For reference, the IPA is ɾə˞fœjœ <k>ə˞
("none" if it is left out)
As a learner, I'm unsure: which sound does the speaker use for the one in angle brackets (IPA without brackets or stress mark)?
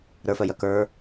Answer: k